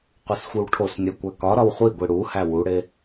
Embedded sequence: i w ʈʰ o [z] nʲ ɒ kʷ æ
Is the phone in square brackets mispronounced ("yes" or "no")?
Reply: yes